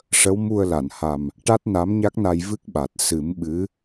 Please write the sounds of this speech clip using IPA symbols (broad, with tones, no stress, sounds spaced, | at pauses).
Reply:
ʂ ə˧˥ w m u˧ ə̯ l a˨˩˨ n h a˨˩ m | ʈ a˦˥ t̚ n a˧˥ m ɲ a˦˥ k̚ n a˧ j v ɨ˦˥ k̚ ɓ a˨˩ t̚ s ɨ˨˩˦ m ɓ ɨ˧˥